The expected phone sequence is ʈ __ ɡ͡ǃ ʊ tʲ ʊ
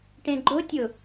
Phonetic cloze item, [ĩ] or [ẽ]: ẽ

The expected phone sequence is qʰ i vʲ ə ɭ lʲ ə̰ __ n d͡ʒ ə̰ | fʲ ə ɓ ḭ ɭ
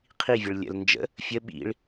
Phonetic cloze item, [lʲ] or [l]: l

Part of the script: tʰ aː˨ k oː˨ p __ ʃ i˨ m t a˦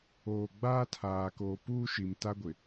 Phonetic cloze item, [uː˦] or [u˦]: uː˦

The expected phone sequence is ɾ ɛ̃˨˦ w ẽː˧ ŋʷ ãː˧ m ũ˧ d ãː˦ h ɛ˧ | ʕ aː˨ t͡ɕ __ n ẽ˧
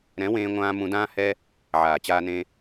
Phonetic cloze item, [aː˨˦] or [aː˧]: aː˧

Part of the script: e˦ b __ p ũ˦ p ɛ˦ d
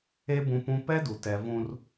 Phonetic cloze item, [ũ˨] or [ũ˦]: ũ˦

